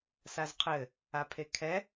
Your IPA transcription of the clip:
sazqʰɘ | apʰekʰɛ

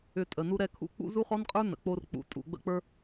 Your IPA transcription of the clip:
ʏ˧tʼə˨nu˦ ɾɛ˧kʰṵ˦˨ k͡pṵ˦ zu˦χɔ˦nqʼə˞˦ nə̰˨k͡po˧rk͡pṵ˨ tʼṵ˨ɡ͡bə̰˧k͡pə˞˧

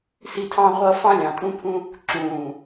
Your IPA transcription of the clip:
si˦tʰɑ̃˦ʁʷʌ˦ fɑ̃˦lʲɑ̃˨tʼũ˦pʰũ˦ | ǁũː˨

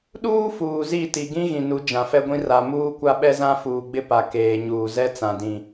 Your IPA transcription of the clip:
ɗuː˦ fuː˨zi˦˨ ti˨ɡĩ˦ ɣĩ˨nu˨˦ d͡ʒã˨fɛ˦ɡʷĩ˦ ra˨ muː˦kʷa˦ ɓɛ˦zã˦fuː˨ɡ͡bɪ˦ pa˨ keː˨ɲuː˨ zɛ˦t͡sã˨dĩ˨

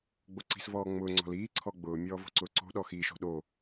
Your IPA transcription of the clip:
ɡ͡boǀi̤s vɔːŋ͡mʊː ŋ͡ǀɔ̤liː ǀʰɔɡ͡bʊː mʲɔːvo̤ǀʊːǀo̤ ɗɔxiːʃo̤ɗo

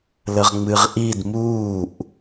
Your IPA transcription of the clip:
ləʁŋ͡mɨʁʔid muːʔ

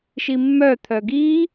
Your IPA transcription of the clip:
ʃimːœ t̪ʰœɡi

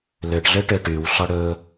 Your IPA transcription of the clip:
løʈɮø ʈøʈyw ɬɔɽɵ

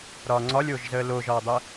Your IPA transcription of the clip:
ɾɒːŋ͡ǀɒlʲoːʒzəː loːʒɒːdˤə

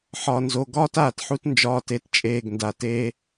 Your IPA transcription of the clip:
ħɒ˨nzo˨ ɡɒː˦taː˨tħu˦t nd͡ʒɒː˦te˦tt͡ʃʼeː˦˨ɡnda˨ teː˦

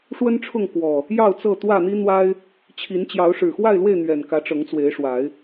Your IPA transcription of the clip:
ʂwə˦nʈ͡ʂʰʊ˥˨ŋkwɔ˨˩ | jɑ˥˨ʊ̯t͡sɤ˥˨ t̪wä˥˨n̪i˦n̪wa˦ɪ̯ | t͡ɕʰi˨˦nt͡ɕjɑ˨˦ʊ̯ ʂɻ̩˨˩xwa˥˨ɪ̯lwe˥˨ɪ̯ n̪ɥɛ˨˩nkä˨˦ ʈ͡ʂɤ˨˦ŋt͡swe˨˦ɪ̯ʂwa˨˦ɪ̯

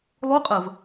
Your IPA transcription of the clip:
lˠuqʼəv

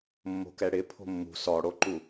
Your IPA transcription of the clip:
mːo̤kɛɽɪ pʰo̤mːṳ sɔɽoǃu

